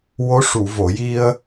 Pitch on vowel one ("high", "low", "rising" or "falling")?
rising